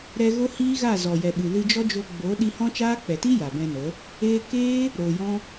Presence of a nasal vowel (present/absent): present